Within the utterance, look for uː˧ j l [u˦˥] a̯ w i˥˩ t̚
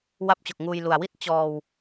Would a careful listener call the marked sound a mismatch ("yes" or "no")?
yes